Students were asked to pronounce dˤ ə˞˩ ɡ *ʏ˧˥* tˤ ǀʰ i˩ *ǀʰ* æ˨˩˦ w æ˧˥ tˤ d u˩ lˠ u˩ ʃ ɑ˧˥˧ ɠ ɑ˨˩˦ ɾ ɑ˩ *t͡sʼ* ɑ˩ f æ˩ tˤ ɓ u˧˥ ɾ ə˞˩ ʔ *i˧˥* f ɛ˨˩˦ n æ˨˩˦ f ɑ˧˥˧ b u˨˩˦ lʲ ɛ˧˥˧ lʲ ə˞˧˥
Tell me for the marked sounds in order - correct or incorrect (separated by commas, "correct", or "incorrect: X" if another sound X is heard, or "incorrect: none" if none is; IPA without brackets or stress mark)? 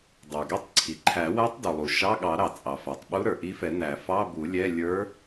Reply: incorrect: ɛ˧˥, incorrect: ǃʰ, correct, correct